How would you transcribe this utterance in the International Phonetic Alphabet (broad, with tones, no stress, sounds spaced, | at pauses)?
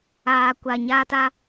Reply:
aː˨ kʷ a˨ ɲ aː˦ t a˦